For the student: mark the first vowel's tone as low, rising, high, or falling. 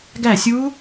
falling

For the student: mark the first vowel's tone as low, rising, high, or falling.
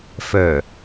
low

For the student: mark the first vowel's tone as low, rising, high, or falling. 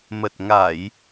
low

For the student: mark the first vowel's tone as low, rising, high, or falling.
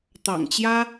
low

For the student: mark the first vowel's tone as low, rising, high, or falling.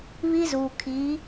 high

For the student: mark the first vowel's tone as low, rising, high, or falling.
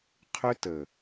high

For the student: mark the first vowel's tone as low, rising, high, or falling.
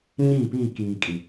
falling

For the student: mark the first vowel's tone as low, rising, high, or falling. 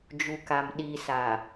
low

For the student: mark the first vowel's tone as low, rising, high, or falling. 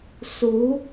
rising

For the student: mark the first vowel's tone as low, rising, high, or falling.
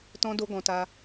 high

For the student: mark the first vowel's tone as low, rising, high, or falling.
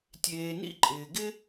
low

